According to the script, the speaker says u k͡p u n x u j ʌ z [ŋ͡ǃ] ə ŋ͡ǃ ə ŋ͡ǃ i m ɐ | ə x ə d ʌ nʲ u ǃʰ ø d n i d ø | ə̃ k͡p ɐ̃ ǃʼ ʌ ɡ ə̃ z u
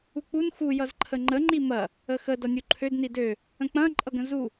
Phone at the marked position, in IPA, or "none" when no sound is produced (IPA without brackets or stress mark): ǃʰ